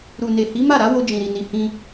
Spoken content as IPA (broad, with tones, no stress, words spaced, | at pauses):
ɾu˨ne˨hi˨˦ ma˦˨ɾa˨˦ wo˧d͡ʒĩ˨ɾi˨ni˨ hĩ˧